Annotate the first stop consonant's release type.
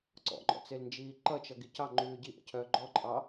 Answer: click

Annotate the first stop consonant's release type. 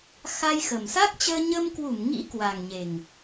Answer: plain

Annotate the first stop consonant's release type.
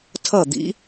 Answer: aspirated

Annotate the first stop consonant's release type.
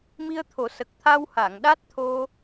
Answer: aspirated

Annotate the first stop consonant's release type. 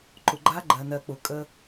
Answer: click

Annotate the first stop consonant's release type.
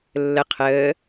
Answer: aspirated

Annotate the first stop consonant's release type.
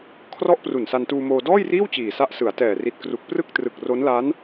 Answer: aspirated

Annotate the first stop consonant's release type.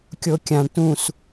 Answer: plain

